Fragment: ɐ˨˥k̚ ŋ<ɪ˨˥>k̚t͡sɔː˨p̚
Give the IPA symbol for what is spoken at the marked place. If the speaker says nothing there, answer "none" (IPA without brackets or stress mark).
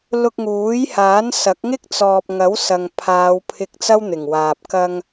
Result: ɪ˥